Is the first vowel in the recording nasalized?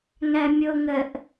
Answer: no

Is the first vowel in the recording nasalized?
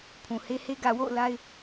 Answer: yes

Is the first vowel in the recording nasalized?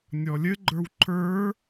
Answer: no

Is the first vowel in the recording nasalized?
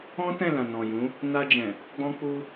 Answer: yes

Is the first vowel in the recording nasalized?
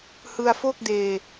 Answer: no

